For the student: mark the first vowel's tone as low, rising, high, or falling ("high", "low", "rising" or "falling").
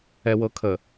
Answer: low